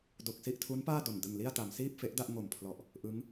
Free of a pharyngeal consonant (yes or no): yes